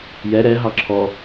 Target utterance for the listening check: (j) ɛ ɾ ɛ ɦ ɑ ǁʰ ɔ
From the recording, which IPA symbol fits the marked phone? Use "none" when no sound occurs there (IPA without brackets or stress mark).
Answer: j